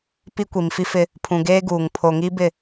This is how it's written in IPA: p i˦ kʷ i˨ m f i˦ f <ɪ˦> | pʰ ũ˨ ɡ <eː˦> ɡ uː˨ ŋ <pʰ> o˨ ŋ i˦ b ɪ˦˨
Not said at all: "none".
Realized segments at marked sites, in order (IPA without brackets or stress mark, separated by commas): ɪ˦, eː˦, pʰ